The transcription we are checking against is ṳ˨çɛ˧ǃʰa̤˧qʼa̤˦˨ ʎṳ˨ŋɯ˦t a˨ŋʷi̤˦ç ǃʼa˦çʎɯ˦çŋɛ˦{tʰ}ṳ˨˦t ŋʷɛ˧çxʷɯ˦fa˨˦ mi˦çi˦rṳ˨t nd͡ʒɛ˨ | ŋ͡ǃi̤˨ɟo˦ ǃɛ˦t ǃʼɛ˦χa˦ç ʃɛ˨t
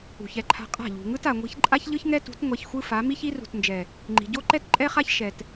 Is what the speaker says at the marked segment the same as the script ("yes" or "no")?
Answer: no